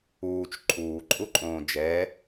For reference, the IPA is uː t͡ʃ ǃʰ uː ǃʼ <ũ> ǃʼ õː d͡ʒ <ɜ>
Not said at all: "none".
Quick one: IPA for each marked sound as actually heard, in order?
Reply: u, ɛ

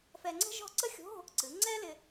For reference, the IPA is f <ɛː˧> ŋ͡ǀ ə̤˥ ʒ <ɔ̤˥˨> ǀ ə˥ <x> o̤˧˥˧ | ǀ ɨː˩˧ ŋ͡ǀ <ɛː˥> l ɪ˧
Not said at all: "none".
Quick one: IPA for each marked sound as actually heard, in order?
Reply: ɛː˧, ɔ̤˥˨, xʲ, ɛː˥

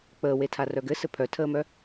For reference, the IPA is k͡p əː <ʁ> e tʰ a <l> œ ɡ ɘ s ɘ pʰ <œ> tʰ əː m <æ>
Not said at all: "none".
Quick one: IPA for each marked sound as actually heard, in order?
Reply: w, r, œ, œ

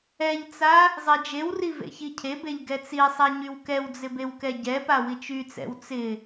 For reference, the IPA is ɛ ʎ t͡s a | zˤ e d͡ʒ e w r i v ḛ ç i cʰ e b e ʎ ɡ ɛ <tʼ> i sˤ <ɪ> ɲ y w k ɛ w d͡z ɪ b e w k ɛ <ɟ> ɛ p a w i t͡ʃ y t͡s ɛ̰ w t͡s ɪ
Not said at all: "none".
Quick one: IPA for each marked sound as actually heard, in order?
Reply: t͡s, ɛ, ɟ

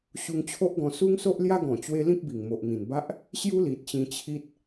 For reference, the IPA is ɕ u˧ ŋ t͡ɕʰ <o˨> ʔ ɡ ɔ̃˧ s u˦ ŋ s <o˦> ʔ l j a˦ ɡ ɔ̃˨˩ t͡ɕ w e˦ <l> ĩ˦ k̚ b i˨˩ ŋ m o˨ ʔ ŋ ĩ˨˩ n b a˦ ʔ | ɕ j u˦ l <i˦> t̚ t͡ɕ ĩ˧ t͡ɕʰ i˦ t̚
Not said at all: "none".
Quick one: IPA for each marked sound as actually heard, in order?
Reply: o˦, o˦, l, i˨

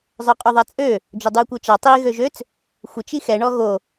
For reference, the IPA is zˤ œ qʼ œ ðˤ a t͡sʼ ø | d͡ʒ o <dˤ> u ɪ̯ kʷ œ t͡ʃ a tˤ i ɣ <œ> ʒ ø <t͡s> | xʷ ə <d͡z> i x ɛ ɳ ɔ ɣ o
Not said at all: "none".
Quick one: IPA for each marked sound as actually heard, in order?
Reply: dˤ, ø, t͡s, t͡ʃ

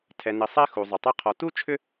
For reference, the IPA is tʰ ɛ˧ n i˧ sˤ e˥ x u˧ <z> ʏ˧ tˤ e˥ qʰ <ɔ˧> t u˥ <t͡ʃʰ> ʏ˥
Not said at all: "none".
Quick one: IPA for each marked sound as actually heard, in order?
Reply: zˤ, ɔ˧, t͡ʃʰ

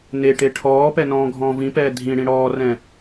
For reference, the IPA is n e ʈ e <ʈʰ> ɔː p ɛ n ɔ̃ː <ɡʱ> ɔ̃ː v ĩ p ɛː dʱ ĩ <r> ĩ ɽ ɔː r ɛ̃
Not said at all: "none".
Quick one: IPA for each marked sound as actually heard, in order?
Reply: ʈʰ, ɡʱ, ɽ

